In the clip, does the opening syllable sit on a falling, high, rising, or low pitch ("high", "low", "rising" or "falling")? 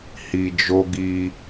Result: low